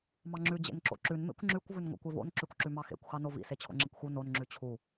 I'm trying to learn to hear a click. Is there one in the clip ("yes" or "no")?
yes